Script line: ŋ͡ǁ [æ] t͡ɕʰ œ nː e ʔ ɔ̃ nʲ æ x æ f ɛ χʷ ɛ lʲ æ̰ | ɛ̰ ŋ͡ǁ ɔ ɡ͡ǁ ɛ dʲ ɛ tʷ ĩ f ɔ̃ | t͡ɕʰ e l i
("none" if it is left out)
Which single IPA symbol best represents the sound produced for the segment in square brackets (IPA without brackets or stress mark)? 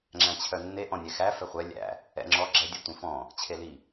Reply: æ̃